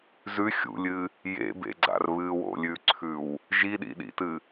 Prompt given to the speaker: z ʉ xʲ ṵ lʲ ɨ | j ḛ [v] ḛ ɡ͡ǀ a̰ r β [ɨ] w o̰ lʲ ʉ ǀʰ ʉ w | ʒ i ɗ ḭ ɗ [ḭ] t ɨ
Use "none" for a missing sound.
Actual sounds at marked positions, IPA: b, ɨ, ḭ

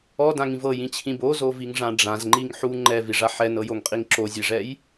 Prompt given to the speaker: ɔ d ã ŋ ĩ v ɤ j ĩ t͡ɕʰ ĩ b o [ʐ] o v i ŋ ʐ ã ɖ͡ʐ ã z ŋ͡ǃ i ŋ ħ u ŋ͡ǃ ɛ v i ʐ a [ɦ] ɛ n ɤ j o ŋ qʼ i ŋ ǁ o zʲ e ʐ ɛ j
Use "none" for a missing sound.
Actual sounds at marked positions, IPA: z, ħ

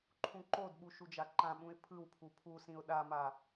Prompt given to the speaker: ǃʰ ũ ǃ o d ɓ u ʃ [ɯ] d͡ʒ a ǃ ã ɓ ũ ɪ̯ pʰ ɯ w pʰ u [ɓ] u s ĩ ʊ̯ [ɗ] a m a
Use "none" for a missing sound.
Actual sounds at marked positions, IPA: u, pʰ, ɗ

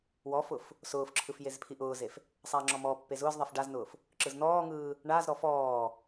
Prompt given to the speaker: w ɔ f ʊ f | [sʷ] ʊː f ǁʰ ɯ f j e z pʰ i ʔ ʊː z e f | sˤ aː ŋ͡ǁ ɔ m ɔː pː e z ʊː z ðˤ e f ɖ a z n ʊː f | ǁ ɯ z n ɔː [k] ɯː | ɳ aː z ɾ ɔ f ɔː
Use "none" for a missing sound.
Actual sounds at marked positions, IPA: s, ŋ

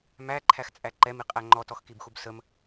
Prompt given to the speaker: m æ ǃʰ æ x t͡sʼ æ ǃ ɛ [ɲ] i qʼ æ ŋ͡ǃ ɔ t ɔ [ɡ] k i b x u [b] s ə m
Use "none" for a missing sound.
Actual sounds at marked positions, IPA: m, x, b

